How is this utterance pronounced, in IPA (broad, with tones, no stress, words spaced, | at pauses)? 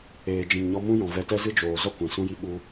eː˨d͡ʒĩ˨ŋɲɔ˧ mũ˦jɔ̃˨vɛ˧tɛ˦ zɨ˦d͡ʒoː˨ zɔ˦ kʷɛ̃˨sũ˦ji˦ ɓu˧